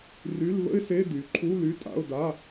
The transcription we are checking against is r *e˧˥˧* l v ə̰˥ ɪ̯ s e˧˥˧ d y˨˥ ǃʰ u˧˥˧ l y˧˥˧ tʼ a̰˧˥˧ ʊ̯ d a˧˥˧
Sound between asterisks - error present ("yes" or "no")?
yes